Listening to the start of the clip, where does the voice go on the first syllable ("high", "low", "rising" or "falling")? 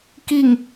falling